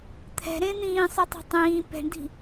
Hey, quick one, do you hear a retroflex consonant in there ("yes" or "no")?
yes